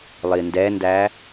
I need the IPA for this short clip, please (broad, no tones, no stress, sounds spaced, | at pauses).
lˠ i n d ɛ n d æ